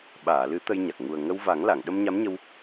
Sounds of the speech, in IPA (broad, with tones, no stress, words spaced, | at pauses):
ɓaː˨˩˨lɨ˨˩˦ t̪ə˧jɲa˨˩k̚ ŋu˨˩ə̯ ŋə˧wva˨˩˦ŋla˨˩˨ŋ ɗə˧mɲa˧˥mɲə˧w